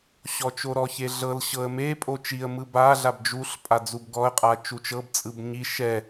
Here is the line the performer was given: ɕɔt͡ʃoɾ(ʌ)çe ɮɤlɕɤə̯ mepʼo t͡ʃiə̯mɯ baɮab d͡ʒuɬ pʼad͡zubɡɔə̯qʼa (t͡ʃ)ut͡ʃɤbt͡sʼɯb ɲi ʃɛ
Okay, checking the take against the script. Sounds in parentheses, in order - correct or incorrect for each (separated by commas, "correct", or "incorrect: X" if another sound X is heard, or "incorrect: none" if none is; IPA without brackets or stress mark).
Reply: incorrect: ɔ, correct